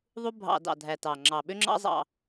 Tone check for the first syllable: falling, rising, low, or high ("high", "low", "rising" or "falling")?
high